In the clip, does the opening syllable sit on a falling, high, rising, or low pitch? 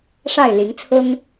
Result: falling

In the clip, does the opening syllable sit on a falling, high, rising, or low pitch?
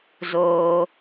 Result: high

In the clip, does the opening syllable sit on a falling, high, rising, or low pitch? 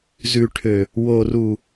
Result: low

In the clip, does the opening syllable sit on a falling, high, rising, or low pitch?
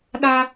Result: high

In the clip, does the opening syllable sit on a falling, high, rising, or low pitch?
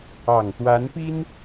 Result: low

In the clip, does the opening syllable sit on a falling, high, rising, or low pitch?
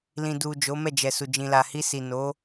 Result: low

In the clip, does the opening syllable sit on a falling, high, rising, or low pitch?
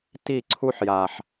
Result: falling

